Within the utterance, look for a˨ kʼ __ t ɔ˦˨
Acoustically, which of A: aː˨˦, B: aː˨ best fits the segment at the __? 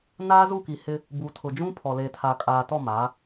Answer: B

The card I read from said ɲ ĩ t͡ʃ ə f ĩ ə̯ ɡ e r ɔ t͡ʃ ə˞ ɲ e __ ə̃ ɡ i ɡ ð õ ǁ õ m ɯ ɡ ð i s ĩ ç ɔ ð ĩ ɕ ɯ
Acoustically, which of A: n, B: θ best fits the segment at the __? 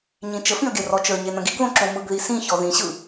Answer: A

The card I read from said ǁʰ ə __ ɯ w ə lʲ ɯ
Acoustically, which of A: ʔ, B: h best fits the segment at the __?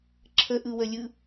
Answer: A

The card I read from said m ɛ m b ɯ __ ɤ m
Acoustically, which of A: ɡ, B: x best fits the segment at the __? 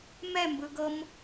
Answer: A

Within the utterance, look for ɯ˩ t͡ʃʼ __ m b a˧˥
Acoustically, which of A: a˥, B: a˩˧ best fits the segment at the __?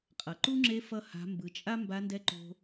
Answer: A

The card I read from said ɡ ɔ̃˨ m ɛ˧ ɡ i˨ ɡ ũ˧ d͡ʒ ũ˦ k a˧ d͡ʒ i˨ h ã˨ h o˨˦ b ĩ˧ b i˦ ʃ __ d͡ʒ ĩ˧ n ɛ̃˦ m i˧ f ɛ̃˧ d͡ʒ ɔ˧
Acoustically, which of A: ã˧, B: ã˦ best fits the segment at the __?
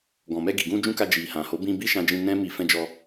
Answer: A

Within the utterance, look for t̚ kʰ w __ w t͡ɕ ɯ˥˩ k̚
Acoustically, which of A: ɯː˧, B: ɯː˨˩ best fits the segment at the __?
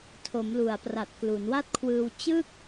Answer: A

